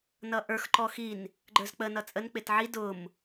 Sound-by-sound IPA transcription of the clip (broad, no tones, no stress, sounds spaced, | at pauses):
n ʌ ʔ ə˞ x ǃ ɔ x i n | ɡ͡ǃ ə˞ z k͡p ə n ʌ t͡sʼ ə n k͡p ɪ t ʕ i d ʊ m